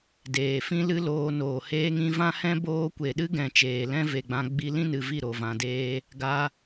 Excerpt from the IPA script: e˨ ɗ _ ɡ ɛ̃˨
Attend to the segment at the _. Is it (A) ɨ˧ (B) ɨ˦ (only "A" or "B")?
B